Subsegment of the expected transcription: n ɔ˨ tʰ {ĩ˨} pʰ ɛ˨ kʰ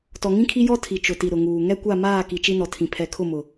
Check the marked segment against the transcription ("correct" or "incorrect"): correct